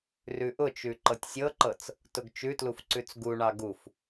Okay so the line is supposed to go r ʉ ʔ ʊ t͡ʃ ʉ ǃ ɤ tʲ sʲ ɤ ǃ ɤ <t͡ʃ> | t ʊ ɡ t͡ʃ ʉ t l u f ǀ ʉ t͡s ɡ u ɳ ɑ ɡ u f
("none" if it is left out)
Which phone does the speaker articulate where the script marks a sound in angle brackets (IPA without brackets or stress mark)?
t͡s